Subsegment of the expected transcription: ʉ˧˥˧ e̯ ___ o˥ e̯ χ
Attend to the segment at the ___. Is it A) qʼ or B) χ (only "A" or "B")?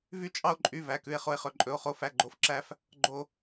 B